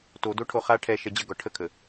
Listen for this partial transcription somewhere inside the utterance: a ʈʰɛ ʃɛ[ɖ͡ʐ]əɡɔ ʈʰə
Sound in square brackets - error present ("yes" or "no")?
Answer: yes